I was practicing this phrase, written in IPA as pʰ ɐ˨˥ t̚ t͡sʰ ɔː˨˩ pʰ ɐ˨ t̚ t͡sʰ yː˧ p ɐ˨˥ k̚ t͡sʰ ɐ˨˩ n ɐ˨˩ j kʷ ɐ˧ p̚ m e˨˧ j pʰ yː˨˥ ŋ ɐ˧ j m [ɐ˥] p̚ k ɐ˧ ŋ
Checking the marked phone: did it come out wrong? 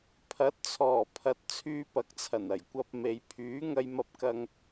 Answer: yes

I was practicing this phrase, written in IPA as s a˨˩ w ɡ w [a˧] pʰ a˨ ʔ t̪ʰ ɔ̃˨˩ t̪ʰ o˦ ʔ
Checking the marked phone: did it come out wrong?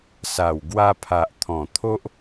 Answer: no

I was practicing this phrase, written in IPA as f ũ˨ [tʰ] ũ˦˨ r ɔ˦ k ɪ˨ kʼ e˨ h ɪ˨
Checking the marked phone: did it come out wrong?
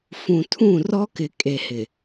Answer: no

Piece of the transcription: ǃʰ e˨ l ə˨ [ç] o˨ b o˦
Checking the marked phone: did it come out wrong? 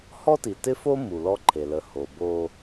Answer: yes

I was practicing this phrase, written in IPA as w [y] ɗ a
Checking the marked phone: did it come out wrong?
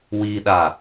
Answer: yes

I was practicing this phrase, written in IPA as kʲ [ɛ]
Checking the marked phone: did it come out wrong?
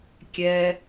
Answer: no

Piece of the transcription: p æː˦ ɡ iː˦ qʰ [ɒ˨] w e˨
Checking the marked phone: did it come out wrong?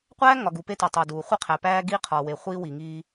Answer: no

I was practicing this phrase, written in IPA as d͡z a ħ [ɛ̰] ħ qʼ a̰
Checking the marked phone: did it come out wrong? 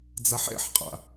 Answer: no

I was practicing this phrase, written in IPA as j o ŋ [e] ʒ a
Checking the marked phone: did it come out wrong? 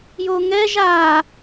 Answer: yes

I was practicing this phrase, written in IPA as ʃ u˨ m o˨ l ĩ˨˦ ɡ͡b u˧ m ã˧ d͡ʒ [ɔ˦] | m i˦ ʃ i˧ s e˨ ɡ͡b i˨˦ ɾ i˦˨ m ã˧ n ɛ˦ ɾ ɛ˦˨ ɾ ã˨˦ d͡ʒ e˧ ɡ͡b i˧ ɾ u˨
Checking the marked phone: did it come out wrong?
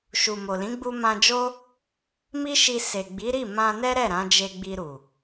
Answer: yes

